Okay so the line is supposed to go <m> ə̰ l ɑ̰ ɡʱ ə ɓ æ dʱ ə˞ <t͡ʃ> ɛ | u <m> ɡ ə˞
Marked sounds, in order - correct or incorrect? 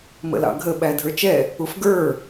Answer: correct, correct, incorrect: f

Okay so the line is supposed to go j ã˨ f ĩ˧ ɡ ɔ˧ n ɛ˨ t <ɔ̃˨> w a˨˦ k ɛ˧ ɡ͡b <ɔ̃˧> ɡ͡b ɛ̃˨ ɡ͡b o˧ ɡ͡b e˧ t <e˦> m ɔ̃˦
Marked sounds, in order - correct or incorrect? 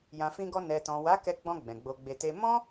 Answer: correct, correct, correct

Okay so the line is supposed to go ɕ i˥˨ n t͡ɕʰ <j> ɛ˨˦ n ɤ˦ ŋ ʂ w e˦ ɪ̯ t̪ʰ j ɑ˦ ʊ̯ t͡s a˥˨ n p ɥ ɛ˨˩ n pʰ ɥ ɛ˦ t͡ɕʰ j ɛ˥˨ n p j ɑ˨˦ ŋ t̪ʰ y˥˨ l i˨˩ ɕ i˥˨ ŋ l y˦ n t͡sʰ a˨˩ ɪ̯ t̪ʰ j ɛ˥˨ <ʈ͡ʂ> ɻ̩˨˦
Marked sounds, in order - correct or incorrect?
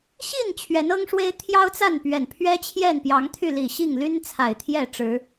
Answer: incorrect: ɥ, correct

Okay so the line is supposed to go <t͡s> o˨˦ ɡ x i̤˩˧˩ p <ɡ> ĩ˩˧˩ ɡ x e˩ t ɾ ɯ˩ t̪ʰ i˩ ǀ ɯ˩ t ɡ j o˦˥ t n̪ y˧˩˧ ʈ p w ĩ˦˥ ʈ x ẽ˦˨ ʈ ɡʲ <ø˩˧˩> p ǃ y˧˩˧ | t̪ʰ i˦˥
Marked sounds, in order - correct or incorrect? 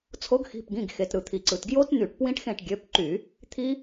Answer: incorrect: t͡sʰ, correct, correct

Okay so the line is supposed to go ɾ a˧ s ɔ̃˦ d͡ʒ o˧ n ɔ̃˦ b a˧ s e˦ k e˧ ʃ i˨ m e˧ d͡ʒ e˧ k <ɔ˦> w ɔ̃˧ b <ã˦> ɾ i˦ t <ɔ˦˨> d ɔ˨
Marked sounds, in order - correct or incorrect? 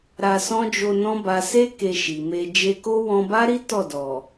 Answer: incorrect: o˦, incorrect: a˦, correct

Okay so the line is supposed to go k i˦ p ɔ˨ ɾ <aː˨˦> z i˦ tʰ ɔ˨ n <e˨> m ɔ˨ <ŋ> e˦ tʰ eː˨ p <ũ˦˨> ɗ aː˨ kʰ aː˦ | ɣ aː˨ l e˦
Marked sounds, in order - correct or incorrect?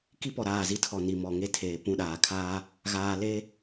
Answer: incorrect: aː˦˨, incorrect: i˨, correct, correct

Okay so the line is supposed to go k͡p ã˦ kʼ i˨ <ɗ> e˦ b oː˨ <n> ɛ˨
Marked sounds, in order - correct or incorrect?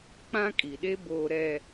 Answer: correct, incorrect: ɾ

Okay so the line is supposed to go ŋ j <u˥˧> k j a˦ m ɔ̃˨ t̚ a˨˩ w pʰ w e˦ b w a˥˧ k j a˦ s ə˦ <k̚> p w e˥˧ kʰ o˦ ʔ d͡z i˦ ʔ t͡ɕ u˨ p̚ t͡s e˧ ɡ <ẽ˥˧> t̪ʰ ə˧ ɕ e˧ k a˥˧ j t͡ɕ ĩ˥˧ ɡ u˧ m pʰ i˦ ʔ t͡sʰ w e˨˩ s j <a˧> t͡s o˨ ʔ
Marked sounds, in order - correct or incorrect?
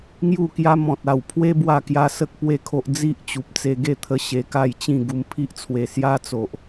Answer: correct, correct, incorrect: e˥˧, incorrect: a˦

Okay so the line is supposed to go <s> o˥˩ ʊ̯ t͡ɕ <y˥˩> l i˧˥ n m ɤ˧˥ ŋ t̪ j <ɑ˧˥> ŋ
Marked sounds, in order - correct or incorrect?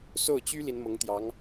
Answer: correct, incorrect: y˥, correct

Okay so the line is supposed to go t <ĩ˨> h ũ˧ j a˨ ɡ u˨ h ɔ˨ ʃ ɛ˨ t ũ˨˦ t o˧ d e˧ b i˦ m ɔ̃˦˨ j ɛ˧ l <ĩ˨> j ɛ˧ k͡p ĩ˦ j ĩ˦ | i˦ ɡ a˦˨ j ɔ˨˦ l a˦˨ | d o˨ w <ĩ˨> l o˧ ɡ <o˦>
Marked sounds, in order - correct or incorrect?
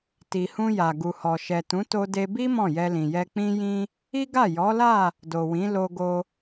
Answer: incorrect: i˨, correct, incorrect: ĩ˨˦, incorrect: o˧

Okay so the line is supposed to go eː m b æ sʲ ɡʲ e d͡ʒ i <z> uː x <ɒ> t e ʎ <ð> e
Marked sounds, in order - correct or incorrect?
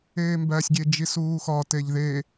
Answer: incorrect: s, correct, correct

